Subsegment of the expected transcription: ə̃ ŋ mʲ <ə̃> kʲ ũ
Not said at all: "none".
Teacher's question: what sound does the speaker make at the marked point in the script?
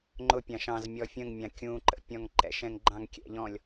ɑ̃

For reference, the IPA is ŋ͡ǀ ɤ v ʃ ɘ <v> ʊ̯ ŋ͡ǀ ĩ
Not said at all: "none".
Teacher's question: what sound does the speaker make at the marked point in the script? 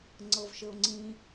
none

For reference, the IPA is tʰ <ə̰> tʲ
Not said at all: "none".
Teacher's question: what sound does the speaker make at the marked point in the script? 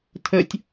ə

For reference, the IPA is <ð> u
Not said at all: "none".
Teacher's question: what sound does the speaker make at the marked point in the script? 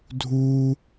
dʱ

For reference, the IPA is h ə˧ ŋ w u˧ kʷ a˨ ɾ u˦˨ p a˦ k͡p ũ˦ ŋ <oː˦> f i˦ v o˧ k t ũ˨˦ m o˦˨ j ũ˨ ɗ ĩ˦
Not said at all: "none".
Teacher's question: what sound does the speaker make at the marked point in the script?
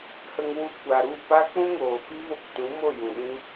oː˨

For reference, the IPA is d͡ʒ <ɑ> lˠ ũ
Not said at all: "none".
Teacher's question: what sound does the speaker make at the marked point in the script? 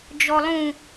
ɔ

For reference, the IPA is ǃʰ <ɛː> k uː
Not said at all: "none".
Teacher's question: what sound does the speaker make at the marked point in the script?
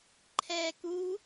ɛː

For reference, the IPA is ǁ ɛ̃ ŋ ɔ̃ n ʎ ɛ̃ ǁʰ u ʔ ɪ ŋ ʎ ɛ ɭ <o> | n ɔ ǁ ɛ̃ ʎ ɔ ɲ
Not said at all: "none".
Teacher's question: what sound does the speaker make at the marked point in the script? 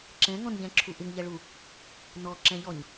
u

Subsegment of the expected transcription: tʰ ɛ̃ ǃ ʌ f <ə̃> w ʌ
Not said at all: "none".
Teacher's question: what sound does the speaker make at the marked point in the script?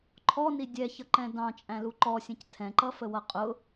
ə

